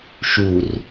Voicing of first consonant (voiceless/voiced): voiceless